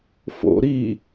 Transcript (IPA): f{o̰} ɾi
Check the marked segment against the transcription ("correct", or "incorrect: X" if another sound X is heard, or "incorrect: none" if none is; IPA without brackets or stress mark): correct